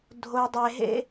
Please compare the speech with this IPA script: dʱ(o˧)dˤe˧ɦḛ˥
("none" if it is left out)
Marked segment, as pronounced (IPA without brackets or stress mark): o˧